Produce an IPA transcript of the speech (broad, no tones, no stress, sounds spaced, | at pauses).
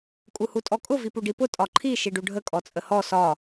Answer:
kʼ u h u tʼ ɔ kʼ ʊ v i p u ɖ i p ʊ tʼ ɒ ǃʰ i ʃ i ɖ u ɖʱ ə kʼ ɔ t͡sʼ ə h ɔ s ɒ